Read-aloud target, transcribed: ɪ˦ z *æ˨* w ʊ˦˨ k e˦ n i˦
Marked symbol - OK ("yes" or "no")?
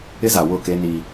no